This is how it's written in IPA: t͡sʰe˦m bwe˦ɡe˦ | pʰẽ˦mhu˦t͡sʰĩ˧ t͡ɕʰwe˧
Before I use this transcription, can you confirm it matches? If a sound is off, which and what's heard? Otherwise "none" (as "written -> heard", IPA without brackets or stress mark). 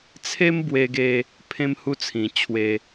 none